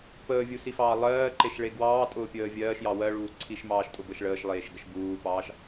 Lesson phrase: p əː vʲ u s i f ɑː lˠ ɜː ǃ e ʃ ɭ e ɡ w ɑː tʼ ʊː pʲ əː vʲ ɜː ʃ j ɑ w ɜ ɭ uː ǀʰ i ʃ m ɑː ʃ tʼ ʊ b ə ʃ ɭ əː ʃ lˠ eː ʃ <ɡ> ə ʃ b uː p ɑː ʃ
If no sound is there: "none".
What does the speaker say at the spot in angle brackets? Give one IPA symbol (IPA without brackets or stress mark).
ɡ